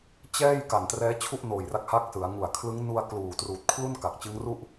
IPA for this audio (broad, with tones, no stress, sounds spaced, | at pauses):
t͡ɕ ɛː˥˩ j k a˨˩ n t r ɛː˦˥ t͡ɕʰ u˥˩ ʔ n oː˨˩ j r a˦˥ k̚ h a˦˥ k̚ s ɯ˩˦ a̯ ŋ u˨˩ a̯ kʰ l ɯ˦˥ ŋ n u˧ a̯ k l uː˨˩ t r uː˨˩ t̚ kʰ l u˥˩ n k a˨˩ k̚ t͡ɕ ɯ˦˥ ŋ r u˥˩ ʔ